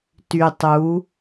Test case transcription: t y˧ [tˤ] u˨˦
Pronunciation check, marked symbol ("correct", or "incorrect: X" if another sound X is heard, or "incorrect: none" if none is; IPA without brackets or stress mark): correct